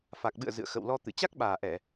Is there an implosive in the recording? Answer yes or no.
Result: yes